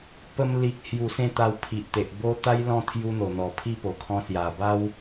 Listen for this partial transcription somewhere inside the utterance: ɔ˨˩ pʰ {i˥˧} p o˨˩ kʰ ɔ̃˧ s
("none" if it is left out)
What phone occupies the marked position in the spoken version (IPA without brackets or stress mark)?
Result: i˥˧